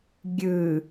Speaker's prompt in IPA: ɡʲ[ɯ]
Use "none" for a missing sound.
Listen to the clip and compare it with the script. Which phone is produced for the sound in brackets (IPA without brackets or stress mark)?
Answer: ɯ